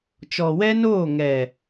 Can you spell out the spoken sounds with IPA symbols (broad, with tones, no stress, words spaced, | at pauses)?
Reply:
t͡ʃɔ˨ wɛ˦noː˦˨ ŋɛ˨